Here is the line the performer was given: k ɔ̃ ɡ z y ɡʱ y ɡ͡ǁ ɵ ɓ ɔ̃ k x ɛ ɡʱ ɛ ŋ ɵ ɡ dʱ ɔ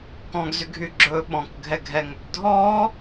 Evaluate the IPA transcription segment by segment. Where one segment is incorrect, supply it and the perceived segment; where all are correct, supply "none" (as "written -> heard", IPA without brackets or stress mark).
x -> ɡʱ